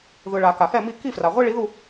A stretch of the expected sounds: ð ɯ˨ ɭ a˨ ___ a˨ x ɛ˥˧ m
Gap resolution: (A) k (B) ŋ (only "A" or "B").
A